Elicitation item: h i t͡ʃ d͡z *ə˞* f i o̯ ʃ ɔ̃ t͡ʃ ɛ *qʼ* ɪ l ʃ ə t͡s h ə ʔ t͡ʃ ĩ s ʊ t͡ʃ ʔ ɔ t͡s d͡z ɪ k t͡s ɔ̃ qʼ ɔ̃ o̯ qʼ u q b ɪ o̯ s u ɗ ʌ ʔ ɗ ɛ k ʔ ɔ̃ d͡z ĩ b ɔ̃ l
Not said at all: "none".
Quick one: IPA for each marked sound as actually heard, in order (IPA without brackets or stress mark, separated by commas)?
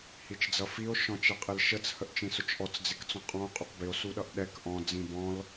ʌ, qʼ